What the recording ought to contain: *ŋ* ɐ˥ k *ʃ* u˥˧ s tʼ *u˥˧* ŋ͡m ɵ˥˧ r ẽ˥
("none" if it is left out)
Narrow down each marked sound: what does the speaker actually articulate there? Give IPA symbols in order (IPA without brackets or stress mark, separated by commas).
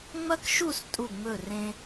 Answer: ŋ͡m, ʃ, u˥˧